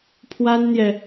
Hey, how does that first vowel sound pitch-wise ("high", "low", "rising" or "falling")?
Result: high